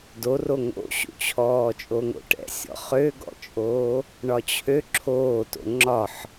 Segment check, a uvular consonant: present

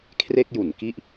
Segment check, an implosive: absent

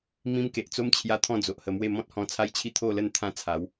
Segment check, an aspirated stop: present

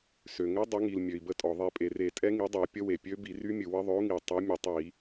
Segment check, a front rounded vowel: present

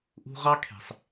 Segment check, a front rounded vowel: absent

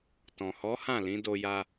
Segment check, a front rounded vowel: absent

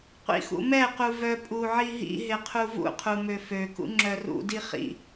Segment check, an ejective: present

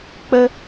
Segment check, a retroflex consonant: absent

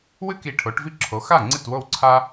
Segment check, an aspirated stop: present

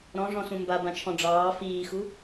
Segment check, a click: absent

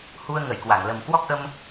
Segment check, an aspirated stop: absent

